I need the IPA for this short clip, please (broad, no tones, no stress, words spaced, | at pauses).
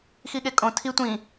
xiɠekʼõ tʰi tʷĩ